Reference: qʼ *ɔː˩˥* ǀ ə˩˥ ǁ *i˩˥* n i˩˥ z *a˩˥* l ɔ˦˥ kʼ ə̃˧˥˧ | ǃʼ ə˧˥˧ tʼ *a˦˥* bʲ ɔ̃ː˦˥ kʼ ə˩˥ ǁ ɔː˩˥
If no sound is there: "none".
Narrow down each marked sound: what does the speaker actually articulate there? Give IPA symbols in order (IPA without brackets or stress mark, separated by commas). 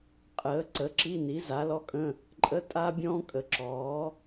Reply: əː˩˥, i˧˥˧, a˩˥, a˦˥